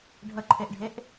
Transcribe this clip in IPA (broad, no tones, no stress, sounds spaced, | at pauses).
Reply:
ɖʱ ə ǃʰ e ʔ ɖʱ e ʔ